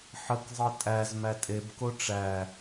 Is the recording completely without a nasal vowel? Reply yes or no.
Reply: yes